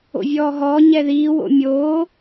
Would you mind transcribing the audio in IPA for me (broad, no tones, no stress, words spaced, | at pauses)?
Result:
o̰vʲɔːɦɔː ɲɛðiː wo̰mʲoː